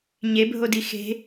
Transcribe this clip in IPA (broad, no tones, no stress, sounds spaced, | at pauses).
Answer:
ɲ e bʱ o d i x e̤